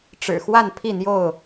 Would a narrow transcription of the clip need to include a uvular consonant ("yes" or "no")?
no